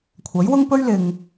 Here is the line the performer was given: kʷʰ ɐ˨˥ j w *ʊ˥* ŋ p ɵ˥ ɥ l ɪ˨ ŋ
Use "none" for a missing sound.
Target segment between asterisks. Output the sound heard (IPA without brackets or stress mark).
ʊ˥